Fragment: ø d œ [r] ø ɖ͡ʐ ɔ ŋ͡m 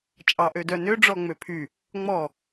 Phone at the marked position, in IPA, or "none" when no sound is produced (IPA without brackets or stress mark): n